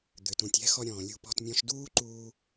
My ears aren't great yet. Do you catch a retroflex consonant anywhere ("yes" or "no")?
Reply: no